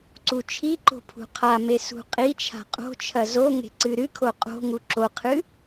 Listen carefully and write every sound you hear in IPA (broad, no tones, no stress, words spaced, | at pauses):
ǀut͡ʃʰiǃo̤ pʰṳqʰame sṳqʼit͡ʃʰa̤ qʼo̤ t͡ʃʰɐzoŋe̤ ǀɨɾɨkʰo qʼo̤ŋu ǁoqʰɨ